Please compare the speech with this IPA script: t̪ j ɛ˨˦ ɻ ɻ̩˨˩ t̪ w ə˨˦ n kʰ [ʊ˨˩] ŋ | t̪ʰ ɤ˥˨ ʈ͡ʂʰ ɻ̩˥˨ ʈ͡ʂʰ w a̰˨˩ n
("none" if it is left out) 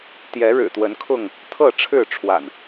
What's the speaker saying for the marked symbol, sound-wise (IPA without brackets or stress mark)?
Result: ʊ˥˨